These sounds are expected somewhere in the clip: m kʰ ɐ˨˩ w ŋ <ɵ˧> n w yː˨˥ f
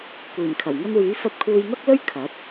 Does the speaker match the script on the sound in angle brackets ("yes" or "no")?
yes